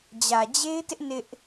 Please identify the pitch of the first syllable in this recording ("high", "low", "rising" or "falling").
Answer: low